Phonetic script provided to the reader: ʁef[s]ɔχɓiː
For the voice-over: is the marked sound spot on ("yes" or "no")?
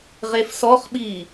yes